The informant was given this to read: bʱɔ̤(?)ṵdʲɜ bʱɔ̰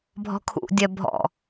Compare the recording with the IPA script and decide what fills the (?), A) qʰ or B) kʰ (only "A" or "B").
B